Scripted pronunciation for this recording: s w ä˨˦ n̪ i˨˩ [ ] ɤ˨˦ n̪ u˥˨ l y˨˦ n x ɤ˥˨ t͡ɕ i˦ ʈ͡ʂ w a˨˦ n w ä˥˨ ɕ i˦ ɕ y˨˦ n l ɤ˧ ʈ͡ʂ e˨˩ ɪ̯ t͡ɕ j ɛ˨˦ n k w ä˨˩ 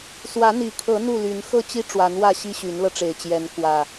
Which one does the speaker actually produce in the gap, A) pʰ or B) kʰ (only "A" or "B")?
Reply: B